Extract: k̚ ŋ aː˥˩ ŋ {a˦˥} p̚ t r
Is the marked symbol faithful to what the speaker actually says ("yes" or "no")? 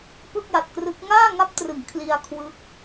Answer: yes